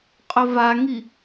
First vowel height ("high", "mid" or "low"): mid